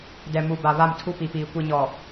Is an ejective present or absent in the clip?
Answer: absent